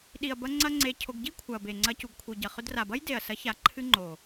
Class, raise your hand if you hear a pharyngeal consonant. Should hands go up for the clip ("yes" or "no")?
no